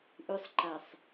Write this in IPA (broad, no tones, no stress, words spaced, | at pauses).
ʔʉsˤǃasˤ